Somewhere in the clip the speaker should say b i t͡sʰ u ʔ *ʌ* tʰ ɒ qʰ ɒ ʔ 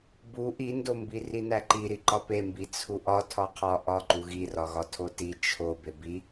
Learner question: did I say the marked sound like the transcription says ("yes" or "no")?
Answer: no